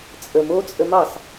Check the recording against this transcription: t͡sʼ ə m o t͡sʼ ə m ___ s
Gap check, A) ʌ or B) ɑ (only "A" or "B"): B